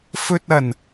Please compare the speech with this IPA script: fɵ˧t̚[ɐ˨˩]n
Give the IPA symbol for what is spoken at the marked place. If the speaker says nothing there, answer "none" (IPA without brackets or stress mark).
ɐ˨˩